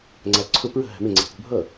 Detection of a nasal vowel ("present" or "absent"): absent